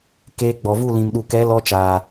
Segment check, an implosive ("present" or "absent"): present